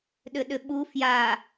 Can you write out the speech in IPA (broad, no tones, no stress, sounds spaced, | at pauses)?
ɗ ʏ ɗ ʏ ɓ u f j a